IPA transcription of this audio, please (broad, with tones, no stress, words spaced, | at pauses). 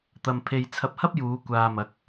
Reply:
t̪ɐ˧mpʰe˧j t͡sʰɐ˧p̚hɐ˥p̚juː˨˧ kʷaː˧mɐ˨˥k̚